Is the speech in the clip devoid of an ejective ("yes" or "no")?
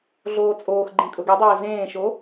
no